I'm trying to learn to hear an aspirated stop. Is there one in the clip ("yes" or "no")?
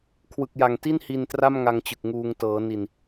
yes